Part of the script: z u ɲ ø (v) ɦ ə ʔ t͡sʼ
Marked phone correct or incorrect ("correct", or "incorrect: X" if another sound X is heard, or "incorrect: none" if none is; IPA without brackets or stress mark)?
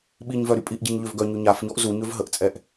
correct